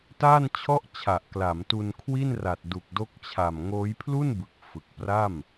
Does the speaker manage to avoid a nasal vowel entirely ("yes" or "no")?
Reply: yes